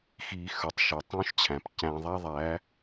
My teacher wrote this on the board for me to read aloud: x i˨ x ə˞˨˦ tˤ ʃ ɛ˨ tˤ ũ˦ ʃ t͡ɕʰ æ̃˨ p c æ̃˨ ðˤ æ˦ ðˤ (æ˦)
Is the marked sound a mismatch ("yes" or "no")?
yes